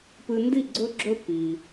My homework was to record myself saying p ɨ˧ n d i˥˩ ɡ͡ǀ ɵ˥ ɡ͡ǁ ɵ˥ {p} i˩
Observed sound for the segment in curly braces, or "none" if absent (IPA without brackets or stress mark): p